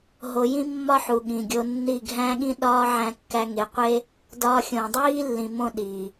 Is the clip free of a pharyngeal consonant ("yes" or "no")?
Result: no